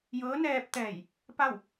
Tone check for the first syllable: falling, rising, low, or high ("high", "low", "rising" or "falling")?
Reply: rising